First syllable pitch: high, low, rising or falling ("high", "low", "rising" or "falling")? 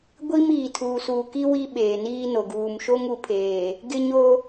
high